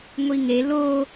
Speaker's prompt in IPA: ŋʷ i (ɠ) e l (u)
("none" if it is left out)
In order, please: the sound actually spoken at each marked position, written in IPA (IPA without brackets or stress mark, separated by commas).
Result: ŋ, o